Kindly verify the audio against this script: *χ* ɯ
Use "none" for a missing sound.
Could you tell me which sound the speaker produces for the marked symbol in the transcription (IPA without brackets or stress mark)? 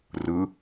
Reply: r